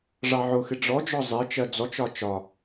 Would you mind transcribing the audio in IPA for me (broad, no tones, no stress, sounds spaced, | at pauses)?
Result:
ʐ ɑ ʕ ʊ x ɪ ɖ͡ʐ ɔ d͡ʒ ɔ zˤ ɪ t͡ʃ ɜ d͡z ɔ t͡ʃ ɒ t͡ʃ ɒ